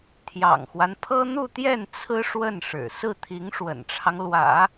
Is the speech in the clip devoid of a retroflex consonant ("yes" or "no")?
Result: no